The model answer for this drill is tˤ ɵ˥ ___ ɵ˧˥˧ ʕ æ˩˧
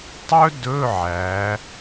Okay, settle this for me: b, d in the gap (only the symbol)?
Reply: d